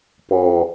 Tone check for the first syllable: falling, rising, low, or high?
low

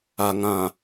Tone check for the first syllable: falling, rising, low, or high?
low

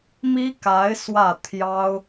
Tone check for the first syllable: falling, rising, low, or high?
high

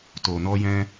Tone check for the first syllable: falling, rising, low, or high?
low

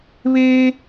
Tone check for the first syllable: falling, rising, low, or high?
low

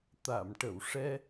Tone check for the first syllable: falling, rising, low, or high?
low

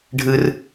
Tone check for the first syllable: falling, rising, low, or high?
high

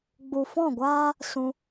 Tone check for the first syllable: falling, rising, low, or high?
low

